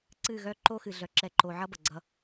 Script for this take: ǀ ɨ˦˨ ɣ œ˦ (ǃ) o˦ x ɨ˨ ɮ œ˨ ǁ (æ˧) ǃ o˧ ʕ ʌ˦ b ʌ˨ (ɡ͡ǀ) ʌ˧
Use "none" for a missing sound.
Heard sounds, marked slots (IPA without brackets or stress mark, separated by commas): ǃ, ɛ˧, ɡ͡ǀ